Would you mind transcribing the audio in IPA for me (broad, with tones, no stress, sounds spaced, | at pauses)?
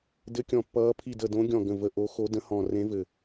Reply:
d ɘ˧˥ kʲ ɔ̃˧˩ pː ʌː˧˥ pʰ i˧˩ d ə˧˩ d õ˧˥ ɡʲ ɔ̃˧˩ ɡ ə̃˧˩ v ə˧˩ ʔ o˧˥ x o˧˥ d ə̃˧˥ h ɔ̃˧˩ r ẽ˧˥ v ɘ˧˩